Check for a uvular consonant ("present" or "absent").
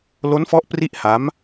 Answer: absent